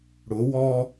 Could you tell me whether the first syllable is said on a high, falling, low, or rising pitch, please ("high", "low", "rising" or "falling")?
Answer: rising